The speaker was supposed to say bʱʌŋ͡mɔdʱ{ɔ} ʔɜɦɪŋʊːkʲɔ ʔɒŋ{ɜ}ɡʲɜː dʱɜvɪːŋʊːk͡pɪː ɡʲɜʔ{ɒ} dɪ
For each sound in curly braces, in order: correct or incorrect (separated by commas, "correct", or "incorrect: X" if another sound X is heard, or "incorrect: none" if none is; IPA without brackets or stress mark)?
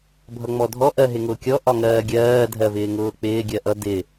correct, incorrect: ɜː, incorrect: ʌ